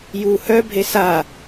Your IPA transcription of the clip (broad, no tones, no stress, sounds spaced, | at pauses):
j u h œ bʱ e s a